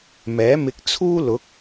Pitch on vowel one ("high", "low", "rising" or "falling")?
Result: rising